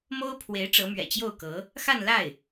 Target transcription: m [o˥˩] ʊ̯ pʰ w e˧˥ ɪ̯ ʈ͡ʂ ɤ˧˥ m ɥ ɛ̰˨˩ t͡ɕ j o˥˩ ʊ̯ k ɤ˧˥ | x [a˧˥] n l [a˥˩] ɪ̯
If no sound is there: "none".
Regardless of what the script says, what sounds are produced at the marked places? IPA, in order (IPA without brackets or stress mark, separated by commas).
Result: o˥, a˥˧, a˥˩